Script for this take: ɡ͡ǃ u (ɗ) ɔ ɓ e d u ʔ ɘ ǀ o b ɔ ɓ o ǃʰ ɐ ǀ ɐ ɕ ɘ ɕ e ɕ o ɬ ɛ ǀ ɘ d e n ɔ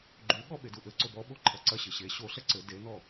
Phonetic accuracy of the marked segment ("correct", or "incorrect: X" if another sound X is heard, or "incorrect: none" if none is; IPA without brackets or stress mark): incorrect: ɠ